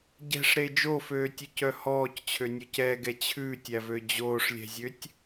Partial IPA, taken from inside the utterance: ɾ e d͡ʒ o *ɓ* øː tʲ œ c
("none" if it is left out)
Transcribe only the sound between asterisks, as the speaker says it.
f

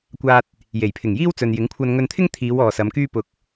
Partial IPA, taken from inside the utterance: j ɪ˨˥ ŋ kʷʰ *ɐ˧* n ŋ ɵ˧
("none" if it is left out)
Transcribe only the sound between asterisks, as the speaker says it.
ɐ˧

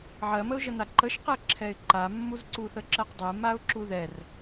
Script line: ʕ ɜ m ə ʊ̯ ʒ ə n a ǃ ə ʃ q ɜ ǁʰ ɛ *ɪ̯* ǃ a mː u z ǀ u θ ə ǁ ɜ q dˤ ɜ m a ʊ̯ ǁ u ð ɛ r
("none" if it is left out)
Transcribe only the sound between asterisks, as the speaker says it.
ɪ̯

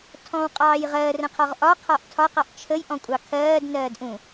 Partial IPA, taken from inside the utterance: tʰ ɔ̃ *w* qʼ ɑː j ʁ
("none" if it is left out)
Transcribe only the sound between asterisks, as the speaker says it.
w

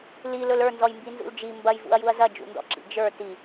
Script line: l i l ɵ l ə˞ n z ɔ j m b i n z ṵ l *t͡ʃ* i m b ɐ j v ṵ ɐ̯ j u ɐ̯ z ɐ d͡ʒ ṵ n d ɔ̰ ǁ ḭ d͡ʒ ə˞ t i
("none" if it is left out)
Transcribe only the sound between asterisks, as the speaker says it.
d͡ʒ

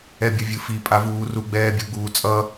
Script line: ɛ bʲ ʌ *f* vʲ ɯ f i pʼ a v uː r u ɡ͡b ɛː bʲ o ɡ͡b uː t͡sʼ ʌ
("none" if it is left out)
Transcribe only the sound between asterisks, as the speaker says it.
none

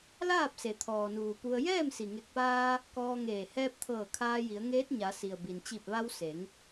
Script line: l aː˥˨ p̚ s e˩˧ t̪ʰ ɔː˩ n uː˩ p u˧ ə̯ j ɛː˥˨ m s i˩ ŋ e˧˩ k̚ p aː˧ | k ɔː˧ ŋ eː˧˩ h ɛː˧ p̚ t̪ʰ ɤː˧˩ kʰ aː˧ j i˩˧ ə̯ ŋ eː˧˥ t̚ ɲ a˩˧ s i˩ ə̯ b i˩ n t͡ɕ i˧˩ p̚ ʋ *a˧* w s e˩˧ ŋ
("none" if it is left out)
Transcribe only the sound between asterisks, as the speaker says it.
a˧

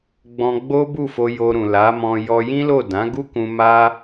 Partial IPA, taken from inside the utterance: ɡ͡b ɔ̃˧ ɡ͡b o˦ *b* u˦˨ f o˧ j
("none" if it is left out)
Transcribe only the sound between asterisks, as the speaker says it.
b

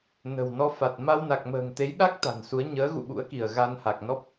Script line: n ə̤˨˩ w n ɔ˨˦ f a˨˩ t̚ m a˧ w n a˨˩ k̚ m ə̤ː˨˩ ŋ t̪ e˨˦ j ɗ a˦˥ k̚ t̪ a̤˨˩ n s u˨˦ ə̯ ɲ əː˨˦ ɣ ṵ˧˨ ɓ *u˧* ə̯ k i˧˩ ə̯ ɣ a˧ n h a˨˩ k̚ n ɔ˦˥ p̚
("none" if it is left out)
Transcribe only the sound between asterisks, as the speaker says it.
ṵ˧˥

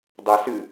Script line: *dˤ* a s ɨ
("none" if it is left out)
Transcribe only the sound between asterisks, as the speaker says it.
dˤ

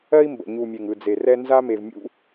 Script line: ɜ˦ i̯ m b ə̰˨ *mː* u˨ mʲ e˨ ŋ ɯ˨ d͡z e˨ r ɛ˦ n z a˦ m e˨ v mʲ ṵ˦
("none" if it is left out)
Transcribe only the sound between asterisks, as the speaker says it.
ɲ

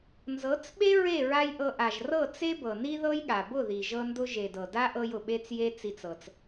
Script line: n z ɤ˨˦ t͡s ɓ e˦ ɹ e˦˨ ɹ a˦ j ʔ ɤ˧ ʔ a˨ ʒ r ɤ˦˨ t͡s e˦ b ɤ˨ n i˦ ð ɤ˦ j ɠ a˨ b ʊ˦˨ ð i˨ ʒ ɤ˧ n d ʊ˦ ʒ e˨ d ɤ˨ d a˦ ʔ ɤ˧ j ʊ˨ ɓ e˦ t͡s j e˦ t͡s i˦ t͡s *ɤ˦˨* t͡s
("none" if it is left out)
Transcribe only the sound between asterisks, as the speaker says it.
ɤ˧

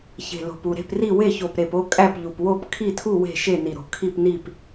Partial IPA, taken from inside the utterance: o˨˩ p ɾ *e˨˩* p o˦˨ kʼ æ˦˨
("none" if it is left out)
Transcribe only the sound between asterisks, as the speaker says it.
e˨˩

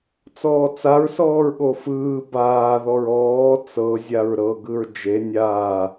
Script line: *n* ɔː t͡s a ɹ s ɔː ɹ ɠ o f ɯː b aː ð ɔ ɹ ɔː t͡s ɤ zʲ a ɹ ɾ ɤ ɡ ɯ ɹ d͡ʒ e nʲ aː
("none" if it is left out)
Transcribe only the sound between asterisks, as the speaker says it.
t͡s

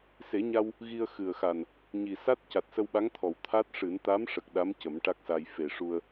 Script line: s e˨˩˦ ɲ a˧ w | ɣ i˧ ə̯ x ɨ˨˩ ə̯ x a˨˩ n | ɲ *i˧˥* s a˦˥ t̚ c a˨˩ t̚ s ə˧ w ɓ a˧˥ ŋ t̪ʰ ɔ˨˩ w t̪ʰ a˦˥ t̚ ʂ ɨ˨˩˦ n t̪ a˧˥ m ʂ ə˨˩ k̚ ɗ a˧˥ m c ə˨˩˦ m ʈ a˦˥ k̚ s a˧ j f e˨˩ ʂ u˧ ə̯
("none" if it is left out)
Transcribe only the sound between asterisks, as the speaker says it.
i˨˩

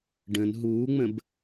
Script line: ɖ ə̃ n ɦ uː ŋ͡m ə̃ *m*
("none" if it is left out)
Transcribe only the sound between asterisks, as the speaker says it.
b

